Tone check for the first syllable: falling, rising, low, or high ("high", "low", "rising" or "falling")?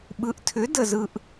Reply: rising